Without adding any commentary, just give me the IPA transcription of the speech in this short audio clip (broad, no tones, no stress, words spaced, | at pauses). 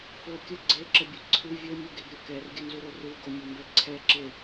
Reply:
fo kʲə ɡ͡ǀeǁəbʲu ǀʰɨ vʲomʲuɡeɡɾʲo kɛrɡʲənzuɾo ruɡomʲɔmbɛ ǀʰɛǁe